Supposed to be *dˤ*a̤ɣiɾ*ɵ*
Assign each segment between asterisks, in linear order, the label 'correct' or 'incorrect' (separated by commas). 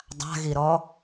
correct, incorrect